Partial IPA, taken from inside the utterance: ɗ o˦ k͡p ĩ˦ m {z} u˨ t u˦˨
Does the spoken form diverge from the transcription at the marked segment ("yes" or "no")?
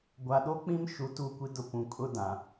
yes